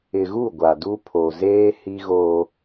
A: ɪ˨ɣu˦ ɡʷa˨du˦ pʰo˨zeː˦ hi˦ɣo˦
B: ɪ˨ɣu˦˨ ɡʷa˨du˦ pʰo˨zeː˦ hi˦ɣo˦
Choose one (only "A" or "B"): B